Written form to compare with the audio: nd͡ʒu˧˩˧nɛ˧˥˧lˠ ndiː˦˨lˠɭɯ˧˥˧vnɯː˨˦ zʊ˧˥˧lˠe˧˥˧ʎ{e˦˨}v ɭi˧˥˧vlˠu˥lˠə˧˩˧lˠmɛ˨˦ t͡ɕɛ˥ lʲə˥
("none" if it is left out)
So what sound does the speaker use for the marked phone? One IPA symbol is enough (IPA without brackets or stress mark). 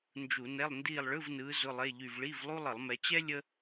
y˦˨